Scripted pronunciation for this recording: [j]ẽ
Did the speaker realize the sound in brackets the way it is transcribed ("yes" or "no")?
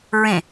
no